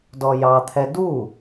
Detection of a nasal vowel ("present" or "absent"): absent